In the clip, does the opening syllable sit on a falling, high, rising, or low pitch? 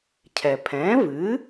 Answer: low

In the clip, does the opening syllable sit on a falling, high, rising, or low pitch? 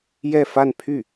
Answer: falling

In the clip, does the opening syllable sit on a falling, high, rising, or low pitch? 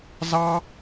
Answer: high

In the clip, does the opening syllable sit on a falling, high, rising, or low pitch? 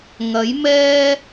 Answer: rising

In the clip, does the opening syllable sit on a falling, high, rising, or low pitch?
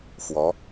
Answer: rising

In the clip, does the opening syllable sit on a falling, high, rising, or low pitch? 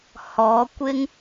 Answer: rising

